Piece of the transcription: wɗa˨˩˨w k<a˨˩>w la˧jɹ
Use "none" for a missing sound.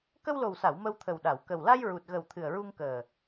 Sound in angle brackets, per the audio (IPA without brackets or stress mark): ə˨˩